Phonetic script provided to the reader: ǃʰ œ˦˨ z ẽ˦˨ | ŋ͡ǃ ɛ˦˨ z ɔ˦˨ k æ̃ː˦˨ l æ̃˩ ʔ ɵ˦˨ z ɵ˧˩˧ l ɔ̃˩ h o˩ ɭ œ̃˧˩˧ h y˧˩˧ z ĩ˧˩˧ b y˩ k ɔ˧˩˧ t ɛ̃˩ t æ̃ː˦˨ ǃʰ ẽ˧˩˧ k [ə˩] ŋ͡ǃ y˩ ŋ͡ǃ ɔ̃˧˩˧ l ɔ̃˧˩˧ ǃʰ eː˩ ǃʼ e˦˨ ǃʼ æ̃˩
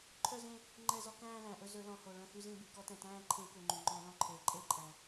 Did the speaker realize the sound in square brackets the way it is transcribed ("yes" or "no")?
no